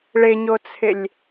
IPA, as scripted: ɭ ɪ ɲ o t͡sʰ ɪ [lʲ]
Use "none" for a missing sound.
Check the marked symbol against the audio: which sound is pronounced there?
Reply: lʲ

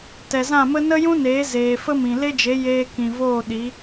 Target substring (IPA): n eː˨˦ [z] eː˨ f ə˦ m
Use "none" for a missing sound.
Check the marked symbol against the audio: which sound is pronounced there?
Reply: z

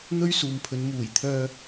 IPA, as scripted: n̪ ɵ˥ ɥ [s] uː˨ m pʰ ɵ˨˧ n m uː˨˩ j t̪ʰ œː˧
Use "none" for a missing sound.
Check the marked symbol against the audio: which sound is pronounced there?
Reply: s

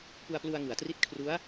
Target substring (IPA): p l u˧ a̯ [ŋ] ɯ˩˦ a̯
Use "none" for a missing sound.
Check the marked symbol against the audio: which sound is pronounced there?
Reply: ŋ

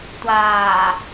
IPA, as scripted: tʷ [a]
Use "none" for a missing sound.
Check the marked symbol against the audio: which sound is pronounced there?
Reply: aː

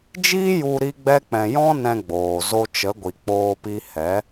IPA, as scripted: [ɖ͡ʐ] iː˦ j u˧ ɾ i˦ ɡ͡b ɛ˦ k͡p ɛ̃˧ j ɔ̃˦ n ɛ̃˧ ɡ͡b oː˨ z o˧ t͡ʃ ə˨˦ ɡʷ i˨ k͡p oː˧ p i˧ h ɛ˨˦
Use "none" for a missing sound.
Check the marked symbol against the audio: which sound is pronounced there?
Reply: d͡ʒ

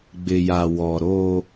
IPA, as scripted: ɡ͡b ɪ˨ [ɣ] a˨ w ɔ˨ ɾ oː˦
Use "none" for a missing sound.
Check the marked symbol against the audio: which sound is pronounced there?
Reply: j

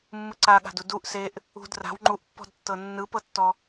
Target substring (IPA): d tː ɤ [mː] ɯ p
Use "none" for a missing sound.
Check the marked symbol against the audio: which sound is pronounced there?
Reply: nː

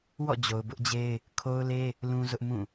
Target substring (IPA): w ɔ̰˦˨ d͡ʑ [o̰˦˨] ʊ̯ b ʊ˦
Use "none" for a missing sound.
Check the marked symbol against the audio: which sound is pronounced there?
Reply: o˨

